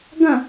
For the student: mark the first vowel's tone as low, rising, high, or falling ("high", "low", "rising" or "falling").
falling